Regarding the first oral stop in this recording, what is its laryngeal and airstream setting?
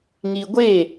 plain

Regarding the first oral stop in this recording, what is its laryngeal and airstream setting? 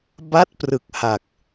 plain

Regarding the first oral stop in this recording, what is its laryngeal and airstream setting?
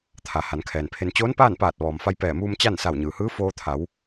aspirated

